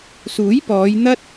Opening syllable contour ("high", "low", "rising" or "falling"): rising